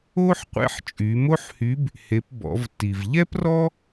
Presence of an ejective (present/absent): present